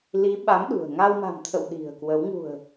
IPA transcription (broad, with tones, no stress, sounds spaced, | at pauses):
l i˨˦ ɓ a˨˦ m ɗ ṳ˨˩ ə̯ ŋ a˧ w m a̤˨˩ m t̪ʰ ə̰˧˨ w ɗ i̤˨˩ ə̯ k w ə˨˦ w ŋ ṳ˨˩ ə̯